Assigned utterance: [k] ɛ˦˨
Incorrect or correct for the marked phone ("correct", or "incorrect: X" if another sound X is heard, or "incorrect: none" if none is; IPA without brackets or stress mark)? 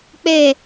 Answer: incorrect: k͡p